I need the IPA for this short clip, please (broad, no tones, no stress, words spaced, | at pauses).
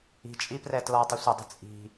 i̤t͡ʃʼiprɛ tlɔtˤə sʷədˤə̤ t͡sʼi̤